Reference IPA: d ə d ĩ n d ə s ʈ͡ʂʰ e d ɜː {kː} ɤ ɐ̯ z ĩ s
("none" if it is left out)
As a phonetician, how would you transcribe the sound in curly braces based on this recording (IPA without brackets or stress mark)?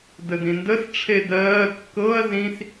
kː